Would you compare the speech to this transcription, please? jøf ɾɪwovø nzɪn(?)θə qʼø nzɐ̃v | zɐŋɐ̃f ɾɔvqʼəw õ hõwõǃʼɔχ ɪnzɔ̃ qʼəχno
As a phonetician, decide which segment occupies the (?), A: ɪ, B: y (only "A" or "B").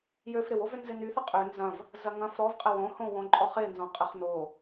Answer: B